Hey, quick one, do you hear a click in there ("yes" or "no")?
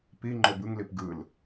yes